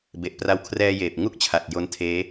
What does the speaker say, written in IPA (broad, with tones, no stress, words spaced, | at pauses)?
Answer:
be˨˩ʔpra˧wkʰrɛː˧jeː˨˩p̚ ŋu˦˥k̚t͡ɕʰa˨˩t̚ jo˦˥ntʰeː˦˥